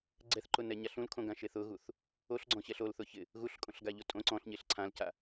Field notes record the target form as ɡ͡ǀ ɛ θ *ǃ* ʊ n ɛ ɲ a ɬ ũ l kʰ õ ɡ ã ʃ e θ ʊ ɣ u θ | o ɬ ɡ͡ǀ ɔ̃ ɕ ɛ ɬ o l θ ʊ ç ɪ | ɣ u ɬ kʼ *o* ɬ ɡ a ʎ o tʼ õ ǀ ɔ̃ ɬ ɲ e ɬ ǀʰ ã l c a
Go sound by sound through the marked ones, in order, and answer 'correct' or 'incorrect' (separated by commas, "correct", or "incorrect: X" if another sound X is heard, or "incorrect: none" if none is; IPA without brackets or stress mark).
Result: correct, incorrect: õ